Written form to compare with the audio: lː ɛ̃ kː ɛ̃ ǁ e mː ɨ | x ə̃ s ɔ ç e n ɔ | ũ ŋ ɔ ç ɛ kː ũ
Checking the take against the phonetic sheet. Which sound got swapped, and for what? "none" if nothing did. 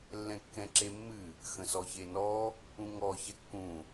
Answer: none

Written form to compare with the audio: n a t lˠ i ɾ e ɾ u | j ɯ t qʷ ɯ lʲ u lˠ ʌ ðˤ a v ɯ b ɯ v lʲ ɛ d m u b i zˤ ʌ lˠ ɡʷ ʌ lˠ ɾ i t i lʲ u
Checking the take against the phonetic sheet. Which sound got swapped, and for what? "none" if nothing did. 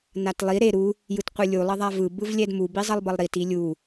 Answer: ɡʷ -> b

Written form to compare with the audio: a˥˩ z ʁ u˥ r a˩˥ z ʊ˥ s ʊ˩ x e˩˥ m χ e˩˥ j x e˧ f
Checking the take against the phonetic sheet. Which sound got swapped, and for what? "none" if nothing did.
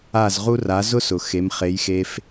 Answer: none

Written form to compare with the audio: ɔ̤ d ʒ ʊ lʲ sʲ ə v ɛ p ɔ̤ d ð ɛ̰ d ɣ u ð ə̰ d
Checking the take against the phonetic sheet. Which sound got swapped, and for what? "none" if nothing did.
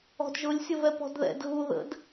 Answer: none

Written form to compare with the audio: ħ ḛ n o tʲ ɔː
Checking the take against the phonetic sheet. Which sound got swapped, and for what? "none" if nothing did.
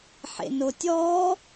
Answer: none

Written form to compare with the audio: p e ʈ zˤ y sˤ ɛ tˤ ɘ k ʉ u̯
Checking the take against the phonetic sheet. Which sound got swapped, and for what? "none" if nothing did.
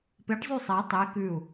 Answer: ɘ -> e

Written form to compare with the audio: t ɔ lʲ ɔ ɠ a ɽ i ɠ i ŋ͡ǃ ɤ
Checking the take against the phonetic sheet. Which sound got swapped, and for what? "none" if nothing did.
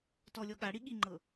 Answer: none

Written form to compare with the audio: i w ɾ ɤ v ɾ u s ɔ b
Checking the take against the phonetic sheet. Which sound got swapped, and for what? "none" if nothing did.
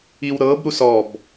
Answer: v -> b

